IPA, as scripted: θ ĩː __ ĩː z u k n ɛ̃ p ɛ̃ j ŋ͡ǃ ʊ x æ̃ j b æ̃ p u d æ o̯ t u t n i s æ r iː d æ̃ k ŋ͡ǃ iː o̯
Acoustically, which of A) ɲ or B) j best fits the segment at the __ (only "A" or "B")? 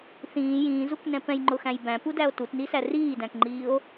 B